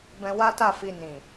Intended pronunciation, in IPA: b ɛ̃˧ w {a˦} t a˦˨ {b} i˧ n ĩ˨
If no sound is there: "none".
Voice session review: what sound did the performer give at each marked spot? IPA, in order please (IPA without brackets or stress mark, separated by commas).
a˦, f